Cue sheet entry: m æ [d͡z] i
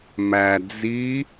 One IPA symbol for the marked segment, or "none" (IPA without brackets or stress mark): d͡z